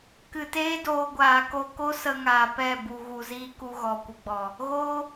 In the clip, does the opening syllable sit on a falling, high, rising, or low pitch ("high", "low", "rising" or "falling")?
low